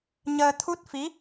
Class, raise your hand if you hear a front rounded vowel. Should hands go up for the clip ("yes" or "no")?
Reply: no